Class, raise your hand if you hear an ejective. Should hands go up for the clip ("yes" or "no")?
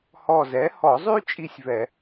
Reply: yes